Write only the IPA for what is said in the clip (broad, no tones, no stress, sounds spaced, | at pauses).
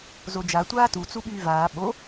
z o d͡ʒ a tʷ aː t u t͡s u ɓ yː v aː ɓ o